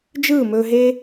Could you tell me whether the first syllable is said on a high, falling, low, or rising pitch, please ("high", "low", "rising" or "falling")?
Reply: falling